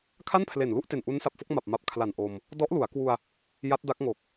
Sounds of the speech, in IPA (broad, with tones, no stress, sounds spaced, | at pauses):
kʰ a˥˩ n pʰ l e˨˩ n l u˥˩ ʔ t e˨˩ n ʔ u˦˥ n s a˨˩ p̚ f o˥˩ k̚ m a˨˩ p̚ m a˨˩ p̚ kʰ l a˨˩ n ʔ o˧ m | d ɔ˦˥ ʔ l u˩˦ a̯ k w u˧ a̯ | j a˦˥ t̚ d a˦˥ k̚ ŋ o˨˩ k̚